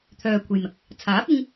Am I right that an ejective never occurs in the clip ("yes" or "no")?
yes